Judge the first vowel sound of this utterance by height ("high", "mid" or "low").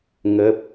mid